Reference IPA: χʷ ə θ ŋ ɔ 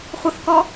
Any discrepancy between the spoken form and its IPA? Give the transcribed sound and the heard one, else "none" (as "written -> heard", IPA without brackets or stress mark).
ŋ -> k